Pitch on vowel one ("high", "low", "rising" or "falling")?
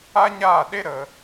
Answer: high